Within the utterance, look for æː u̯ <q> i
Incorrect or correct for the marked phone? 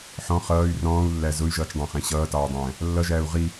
incorrect: ʁ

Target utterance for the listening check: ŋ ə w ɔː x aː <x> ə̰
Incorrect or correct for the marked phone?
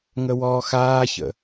incorrect: ç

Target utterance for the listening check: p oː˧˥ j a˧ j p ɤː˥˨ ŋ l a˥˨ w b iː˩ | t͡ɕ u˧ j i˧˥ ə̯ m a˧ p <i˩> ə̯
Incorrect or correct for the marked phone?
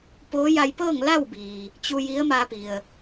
correct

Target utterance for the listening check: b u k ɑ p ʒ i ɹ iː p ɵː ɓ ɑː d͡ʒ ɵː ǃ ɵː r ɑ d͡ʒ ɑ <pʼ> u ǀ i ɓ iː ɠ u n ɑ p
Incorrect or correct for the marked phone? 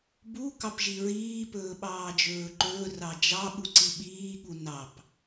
incorrect: ɓ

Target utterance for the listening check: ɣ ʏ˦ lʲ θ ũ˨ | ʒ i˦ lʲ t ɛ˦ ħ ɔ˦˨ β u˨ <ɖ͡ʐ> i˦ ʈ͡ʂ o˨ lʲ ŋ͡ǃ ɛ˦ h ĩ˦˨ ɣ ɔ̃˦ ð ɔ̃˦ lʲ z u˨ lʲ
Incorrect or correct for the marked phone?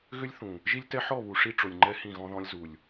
incorrect: ʂ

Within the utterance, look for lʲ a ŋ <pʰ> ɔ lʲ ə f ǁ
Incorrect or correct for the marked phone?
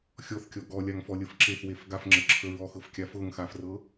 incorrect: f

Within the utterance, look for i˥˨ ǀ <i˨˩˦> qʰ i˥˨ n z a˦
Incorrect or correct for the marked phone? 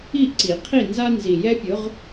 correct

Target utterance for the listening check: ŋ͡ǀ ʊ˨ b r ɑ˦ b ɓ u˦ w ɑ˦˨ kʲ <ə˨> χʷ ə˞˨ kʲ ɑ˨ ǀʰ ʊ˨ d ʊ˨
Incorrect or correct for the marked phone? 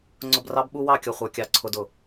incorrect: ʌ˨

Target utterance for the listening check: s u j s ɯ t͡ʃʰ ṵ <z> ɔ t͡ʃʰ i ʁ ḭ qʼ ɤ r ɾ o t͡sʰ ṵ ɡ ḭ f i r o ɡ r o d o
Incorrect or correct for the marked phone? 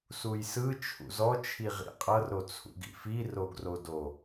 correct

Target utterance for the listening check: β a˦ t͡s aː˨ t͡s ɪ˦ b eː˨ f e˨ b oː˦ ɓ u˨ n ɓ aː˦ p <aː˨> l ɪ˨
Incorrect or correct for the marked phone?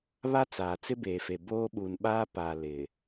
correct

